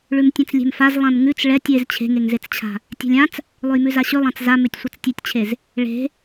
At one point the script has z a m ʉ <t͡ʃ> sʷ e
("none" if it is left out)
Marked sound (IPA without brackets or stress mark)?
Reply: tʲ